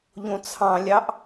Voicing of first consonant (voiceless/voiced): voiced